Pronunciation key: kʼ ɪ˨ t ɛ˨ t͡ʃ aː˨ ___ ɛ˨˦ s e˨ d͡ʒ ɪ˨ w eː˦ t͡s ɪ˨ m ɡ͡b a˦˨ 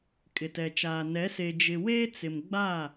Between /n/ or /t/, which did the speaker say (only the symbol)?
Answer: n